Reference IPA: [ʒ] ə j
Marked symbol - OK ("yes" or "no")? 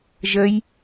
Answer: yes